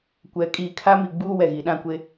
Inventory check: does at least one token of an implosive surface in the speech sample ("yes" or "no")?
yes